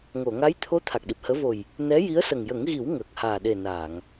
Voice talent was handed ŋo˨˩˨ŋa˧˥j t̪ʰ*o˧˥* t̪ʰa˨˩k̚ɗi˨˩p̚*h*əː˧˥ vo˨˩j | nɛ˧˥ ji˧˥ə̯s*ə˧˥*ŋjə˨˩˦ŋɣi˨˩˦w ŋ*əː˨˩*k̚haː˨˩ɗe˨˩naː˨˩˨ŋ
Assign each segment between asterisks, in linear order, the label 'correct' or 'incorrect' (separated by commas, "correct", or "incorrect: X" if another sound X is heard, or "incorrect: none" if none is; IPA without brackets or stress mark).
correct, correct, incorrect: ə˨˩, correct